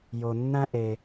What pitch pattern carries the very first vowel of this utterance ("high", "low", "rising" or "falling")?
low